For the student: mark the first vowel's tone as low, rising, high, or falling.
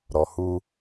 low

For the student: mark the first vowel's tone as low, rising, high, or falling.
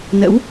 rising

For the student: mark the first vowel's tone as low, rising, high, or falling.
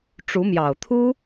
rising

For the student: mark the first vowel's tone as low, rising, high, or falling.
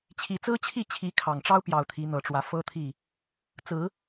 low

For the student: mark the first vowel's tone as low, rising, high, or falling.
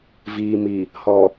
low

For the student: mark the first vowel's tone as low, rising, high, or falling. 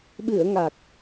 low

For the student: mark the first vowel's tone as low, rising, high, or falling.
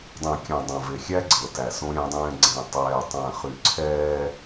low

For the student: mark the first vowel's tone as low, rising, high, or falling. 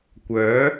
rising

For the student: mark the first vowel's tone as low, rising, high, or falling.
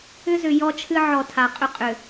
high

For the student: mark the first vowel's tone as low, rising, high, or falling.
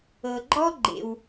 low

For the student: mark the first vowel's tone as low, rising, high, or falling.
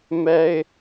high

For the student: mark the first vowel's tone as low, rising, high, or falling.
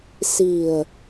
low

